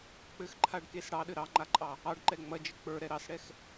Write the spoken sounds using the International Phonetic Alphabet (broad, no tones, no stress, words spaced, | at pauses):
k͡pɘxǃʰaɖkes ɽɑɗɘ ɾɑŋ͡ǃaǃʼɑ | ɑɖǃɛ ŋ͡mɐd͡ʒɘ k͡pə˞ɾɛ ɾɑsɽɛx